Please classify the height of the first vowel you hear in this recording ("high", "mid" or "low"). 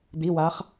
high